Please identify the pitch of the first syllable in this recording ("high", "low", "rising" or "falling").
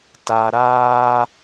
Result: low